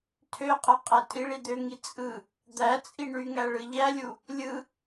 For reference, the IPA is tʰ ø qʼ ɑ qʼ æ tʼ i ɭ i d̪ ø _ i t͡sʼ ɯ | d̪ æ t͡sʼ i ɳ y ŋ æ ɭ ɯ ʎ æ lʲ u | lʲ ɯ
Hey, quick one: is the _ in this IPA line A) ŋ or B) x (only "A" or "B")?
A